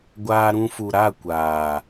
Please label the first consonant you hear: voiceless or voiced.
voiced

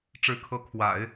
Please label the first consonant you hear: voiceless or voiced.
voiceless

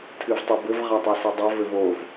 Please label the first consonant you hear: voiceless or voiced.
voiceless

